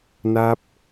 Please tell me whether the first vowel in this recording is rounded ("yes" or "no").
no